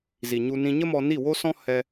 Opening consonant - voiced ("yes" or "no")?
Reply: yes